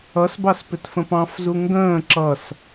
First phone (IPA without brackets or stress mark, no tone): ʌ